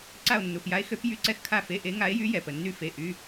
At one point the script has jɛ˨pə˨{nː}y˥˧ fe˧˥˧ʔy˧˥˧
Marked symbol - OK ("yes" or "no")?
yes